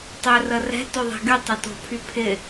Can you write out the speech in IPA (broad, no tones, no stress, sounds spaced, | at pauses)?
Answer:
tˤ ø r ə r ɛ̤ t o ðˤ ɛ̤ ɡ y tˤ ɪ t o̤ pʰ y pʰ ɪ